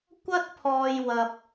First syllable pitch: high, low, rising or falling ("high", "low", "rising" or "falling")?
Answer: high